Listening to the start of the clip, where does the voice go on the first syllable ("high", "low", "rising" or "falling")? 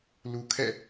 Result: low